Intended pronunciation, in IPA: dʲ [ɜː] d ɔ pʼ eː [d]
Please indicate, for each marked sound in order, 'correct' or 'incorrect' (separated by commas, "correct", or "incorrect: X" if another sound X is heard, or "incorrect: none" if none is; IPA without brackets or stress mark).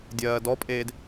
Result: correct, correct